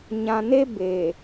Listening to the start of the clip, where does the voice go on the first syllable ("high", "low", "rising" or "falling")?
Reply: low